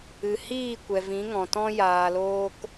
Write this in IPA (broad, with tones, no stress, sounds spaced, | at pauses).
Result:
ɨ˨ h iː˦˨ kʷ ɛ˨ v ĩ˨˦ ŋ ɔ̃˨ t ɔ̃˦ j aː˧ l oː˦ k